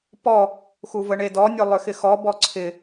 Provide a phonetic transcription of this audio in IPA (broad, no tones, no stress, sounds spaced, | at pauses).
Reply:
p ɔ | x u v ə ɳ e d ɔ nʲ o lˠ ʏ x ɪ x ɔ b ɔ ǀʰ ɪ